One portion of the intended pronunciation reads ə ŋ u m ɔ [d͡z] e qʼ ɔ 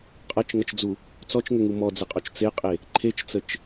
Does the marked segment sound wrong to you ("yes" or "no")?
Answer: no